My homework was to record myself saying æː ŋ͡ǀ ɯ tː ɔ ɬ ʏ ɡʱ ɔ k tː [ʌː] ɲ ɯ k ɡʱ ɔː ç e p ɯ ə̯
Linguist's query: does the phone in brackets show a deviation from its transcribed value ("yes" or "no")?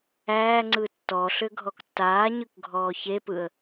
yes